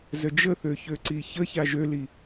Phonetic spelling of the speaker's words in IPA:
z ə d͡ʒ ə θ ø ç ø ǀ i ç ə ç a ʒ ø l i

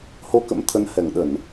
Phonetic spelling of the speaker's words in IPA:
h o˧ k ə̰˧˥ m t̪ʰ ə˨˦ n h ɛ˧˩ ŋ ɗ ə˧˩˨ n

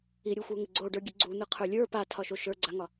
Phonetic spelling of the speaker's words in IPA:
i ɾʲ u xʷ ə˞ ŋ ɪ ɡ͡ǀ o ɖ ə˞ ɡʲ ɨ ɡ͡ǀ u n̪ ɨ qʰ ə˞ lʲ ə˞ p a tʰ ɒ ʃ o ʃ ə˞ ɡ͡ǀ a ŋ ɒ

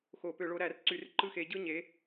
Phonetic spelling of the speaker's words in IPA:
x o˧˩˧ p ø˧˩˧ ɭ o˨˦ ɾ æ˧˩˧ r ǀ y˧˩˧ r ǃ ɯ˥˩ x e˨˦ ɟ ɯ˥˧ ɲ e˨˦

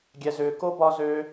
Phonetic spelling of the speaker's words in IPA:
ɡʲ ɛ˨ z ʏː˨ k o˥ b ɒ˦ z ø˦

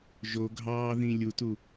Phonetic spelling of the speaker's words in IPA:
ʒ o ɡʱ ɑː ð ĩ lʲ u t u

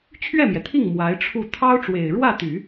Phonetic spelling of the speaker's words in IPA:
t͡ɕʰ ɥ ɛ˥˩ m j ɛ˩ t̪ʰ i˥˩ ŋ m w a˧˥ ɪ̯ ʈ͡ʂʰ u˥˩ t̪ʰ ɑ˥ ʊ̯ ʈ͡ʂ w e˨˩ ɪ̯ ɻ w ä˥˩ t̪ y˨˩˦

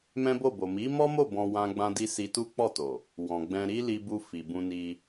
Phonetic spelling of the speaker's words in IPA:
m ɛ̃˦ b o˦˨ b o˨ m i˨˦ m ɔ˦ m o˦˨ b ɔ̃˧ w ã˦ ɡ͡b ã˦ d i˦ s i˧ t u˦ k͡p ɔ˦˨ t o˨ | w ɔ̃˨ ɡ͡b ɛ̃˧ ɾ i˦ l i˧ b u˧ f i˨ b ũ˧ n i˧

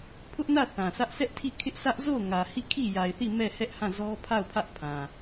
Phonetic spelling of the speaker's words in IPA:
pʰ ʊ˦ ʔ n ä˦˨ θ ã˨ s ä˦ ʔ s ɛ˦ ʔ tʰ i˦˨ kʰ ɪ˦ ʔ sʰ ä˦ ʔ z o˦˨ ʊ̯ ŋ ä˨ h i˦˨ kʰ i˦˨ j a˨ ɪ̯ θ i˦˨ m ɛ˦˨ h ɛ˦ ʔ h ã˦˨ z ɔ˦ pʰ a˦˨ ʊ̯ pʰ ä˦ ʔ pʰ ã˨

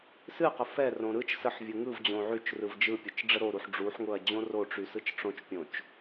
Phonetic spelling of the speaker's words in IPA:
s ɨ q ə f ɛ r õ ɾ ɯ t͡ʃ s ə ħ vʲ ɯ ŋ ɯ v d͡ʑ õ ʕ y t͡ʃ r ɯ v d͡ʒ ɯ pʲ ʊ t͡ʃ ɖ͡ʐ ə ɾ o ɾ u ħ ɖ͡ʐ u ħ ŋ ʊ ɐ̯ d͡ʑ õ r o ʈ͡ʂ y s ɯ t͡ʃ ʈ͡ʂ õ t͡ʃ pʲ õ t͡ʃ

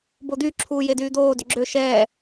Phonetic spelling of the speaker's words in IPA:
b o d̪ y ǁʰ uː j e d yː d̪ oː d ʏ ɡ͡ǁ ø ʃ ɛː

